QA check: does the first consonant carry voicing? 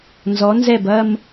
yes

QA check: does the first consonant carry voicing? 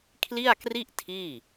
no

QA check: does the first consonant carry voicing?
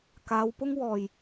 no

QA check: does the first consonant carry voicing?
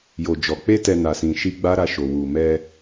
yes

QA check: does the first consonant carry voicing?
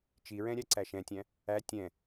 no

